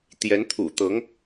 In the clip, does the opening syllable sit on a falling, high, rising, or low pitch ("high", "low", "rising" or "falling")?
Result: rising